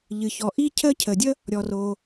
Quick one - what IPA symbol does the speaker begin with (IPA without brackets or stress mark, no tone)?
ʎ